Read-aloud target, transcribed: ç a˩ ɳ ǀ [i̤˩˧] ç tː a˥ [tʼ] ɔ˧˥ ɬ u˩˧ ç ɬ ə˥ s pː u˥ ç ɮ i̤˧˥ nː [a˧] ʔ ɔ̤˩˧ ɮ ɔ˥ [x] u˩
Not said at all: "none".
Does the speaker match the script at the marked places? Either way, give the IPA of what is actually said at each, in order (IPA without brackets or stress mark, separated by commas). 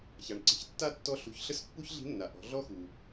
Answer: i̤˩˧, tː, a˩, x